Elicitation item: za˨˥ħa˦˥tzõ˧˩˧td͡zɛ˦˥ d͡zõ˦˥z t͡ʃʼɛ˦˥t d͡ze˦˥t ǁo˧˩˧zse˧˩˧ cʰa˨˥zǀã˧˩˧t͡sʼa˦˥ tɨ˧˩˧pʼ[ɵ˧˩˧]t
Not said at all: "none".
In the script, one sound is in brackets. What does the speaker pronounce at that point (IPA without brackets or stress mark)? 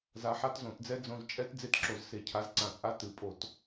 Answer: o˧˩˧